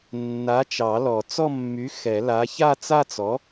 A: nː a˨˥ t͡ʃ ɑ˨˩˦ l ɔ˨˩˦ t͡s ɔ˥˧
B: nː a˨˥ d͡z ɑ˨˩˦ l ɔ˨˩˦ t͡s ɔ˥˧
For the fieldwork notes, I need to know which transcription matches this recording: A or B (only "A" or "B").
A